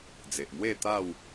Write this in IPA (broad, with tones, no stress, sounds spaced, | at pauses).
d͡z e˨ ʔ m w e˥˧ t̪ a˥˧ w